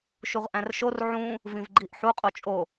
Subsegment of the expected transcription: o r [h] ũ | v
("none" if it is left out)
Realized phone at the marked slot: ʕ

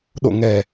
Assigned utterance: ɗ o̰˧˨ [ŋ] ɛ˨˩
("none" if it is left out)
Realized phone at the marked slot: ŋ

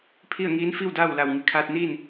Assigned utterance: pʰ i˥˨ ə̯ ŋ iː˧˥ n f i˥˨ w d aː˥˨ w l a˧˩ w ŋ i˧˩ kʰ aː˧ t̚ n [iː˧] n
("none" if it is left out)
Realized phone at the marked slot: iː˥˨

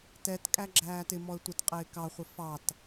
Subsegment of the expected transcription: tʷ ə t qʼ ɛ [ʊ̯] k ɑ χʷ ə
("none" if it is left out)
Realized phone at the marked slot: ɪ̯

